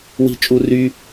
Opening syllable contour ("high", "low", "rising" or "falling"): high